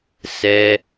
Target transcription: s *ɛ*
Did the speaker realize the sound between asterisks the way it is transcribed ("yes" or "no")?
yes